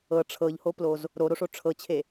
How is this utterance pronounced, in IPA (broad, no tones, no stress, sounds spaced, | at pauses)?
ɤ ʈ͡ʂʰ ɤ ʎ h o p l o z | ɾ o ɾ o ʂ o ʈ͡ʂʰ ɤ t͡ɕʰ e